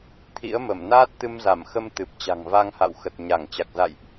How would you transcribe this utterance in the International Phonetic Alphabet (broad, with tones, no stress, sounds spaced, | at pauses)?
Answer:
t̪ʰ ḭ˧˥ ə̯ m ə˧˩ m n aː˦˥ t̚ t̪ ɨ˧ m z a˧˩ m x ə˧ m t̪ ɨ˨˩ p̚ t͡ɕ a̤˨˩ ŋ v a˧ ŋ h a̰˧˨ w x ə˨˩ t̚ ɲ a˧˩ ŋ t͡ɕ a˨˩ k̚ z a̰˧˨ j ʔ